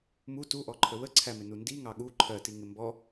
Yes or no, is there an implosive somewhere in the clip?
yes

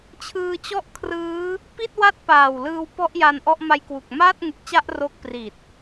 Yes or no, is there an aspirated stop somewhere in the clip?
yes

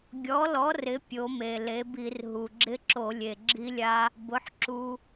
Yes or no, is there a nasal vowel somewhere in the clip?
no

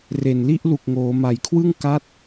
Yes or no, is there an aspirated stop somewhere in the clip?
yes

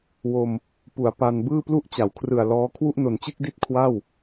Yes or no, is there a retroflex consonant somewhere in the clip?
no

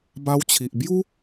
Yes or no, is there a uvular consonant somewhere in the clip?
no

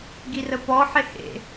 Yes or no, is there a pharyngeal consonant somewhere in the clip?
yes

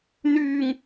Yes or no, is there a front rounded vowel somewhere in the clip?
yes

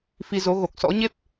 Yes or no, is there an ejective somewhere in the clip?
no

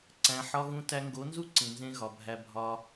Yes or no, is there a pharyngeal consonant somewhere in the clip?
yes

